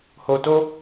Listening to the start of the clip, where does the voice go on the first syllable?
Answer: low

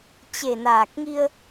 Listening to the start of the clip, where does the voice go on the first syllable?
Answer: low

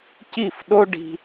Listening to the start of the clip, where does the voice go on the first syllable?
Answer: falling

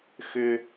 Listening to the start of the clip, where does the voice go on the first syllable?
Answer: high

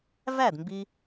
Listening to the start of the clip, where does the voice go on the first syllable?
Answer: falling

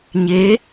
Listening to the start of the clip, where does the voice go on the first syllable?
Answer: rising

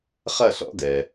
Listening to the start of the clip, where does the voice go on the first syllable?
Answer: falling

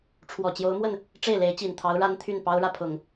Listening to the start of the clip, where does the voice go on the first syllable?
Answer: low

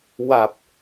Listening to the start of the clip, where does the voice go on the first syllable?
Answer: low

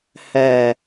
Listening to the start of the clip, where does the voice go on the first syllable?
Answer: low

